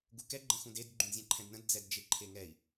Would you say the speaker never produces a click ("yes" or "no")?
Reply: no